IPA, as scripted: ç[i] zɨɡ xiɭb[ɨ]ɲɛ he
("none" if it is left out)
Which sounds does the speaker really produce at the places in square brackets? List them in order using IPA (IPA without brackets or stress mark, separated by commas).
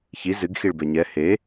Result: i, ɛ